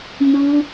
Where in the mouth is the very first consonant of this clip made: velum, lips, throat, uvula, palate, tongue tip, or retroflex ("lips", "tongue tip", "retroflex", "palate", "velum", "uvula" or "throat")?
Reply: tongue tip